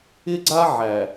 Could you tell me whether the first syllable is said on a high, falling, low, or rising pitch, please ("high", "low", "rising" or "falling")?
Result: high